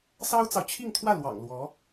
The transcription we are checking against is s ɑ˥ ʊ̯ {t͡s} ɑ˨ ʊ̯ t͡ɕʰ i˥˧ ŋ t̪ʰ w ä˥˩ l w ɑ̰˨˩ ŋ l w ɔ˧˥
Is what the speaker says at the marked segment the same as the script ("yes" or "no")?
yes